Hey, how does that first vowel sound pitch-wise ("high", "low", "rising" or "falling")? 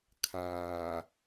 low